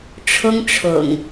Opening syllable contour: high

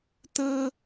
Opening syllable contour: high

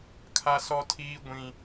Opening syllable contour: high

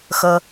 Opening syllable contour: low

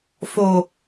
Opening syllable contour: low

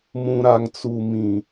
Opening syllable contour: low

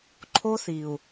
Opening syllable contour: high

